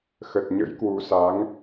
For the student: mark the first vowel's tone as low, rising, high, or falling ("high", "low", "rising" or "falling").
low